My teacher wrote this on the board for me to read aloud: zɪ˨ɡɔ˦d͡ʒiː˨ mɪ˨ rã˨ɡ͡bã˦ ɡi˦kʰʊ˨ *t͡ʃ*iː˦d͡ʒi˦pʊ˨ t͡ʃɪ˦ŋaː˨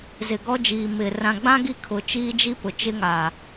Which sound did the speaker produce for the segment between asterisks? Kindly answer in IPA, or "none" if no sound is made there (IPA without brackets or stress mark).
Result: t͡ʃ